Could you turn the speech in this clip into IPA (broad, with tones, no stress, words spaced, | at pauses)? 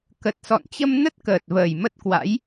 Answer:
kə˨˩t̚ sɔ̰˧˨nt͡ɕə˧m nə˦˥t̚kəː˨˩t̚vəː˨˩j mə˦˥t̚kwa̰˧˥j